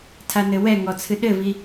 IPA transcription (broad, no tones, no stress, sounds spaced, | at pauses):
tʰ a n ɘ w ɛ ŋ ɔ t͡sʰ ɨ ɗ ɘ v i